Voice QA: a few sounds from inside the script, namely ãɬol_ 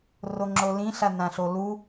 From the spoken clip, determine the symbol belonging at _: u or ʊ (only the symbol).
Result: u